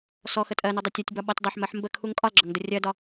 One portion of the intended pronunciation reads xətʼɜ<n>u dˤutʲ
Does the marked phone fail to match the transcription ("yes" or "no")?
no